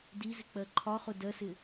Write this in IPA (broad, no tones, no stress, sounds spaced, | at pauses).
d i z ɪ k͡p ɜ ǃʰ ɒ χ ʊ d ɜ s ɪ